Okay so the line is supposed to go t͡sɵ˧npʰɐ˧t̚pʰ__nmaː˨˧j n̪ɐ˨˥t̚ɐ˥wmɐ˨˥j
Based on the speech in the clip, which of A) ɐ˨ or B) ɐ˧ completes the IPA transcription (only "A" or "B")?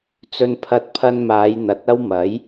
B